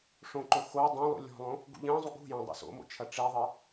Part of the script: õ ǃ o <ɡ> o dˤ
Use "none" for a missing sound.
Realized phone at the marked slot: x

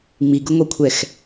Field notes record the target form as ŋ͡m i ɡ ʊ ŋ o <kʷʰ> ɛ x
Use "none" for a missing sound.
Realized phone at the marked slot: kʷʰ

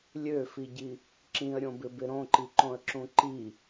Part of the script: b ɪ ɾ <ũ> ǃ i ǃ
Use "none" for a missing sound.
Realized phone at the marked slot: õ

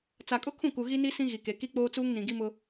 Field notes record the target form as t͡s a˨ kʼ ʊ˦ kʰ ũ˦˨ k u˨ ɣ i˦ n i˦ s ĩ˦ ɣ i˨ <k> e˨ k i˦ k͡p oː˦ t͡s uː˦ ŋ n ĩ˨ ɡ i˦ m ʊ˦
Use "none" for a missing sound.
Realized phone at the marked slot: k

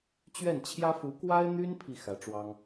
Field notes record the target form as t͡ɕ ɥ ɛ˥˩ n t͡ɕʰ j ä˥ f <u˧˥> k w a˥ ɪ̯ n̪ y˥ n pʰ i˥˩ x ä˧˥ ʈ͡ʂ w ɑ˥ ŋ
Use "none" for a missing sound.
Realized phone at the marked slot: u˧˥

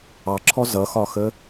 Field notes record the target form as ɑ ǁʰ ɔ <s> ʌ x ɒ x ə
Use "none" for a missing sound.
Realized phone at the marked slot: z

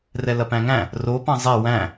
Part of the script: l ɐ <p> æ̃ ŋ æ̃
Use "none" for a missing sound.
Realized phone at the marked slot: p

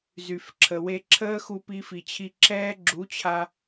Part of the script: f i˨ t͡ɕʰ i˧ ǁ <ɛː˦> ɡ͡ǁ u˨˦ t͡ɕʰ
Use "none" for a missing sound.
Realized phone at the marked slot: ɛː˦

